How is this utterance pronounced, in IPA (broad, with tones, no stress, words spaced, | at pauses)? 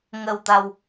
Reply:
ŋə˨˩wt̪a˨˩w